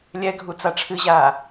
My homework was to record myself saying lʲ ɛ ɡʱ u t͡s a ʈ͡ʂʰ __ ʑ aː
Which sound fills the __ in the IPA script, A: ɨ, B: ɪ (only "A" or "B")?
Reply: A